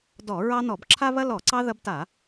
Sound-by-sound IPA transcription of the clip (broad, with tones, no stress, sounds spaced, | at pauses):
d ɔ˧˩˧ ɹ ɑ˦ n ɔ˧˩˧ b ǁʰ a˦ β ɐ˦ l ɔ˧˩˧ ǀ ɑ˦ ð ɐ˦ b t a˧˩˧